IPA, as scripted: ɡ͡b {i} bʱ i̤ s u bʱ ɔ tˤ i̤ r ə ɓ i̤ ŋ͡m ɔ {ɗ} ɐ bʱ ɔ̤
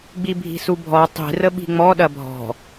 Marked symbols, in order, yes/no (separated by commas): yes, yes